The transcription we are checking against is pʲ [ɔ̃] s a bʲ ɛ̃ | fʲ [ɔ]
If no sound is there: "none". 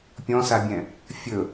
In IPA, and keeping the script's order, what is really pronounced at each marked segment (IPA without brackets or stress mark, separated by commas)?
ɔ̃, ɵ